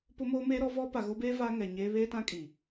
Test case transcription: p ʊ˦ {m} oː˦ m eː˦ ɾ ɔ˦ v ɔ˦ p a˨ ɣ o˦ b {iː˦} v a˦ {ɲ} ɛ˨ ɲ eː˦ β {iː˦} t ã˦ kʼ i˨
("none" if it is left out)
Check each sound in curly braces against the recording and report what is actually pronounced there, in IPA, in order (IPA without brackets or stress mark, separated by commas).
m, eː˦, ŋ, eː˦